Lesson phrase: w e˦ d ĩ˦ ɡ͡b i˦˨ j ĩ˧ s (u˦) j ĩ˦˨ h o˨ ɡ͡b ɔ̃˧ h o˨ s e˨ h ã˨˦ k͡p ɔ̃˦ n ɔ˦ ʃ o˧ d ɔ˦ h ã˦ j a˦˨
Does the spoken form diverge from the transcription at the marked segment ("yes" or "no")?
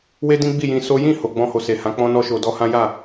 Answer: yes